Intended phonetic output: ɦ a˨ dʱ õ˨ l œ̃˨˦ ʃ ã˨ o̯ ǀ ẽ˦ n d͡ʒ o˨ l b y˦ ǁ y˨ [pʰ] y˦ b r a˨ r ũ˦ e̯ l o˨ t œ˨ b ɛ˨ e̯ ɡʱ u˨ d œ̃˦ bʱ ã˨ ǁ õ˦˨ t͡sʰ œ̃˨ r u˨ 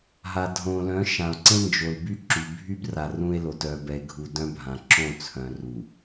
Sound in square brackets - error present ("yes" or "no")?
yes